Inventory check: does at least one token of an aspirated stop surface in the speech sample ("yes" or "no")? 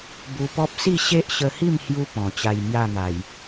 no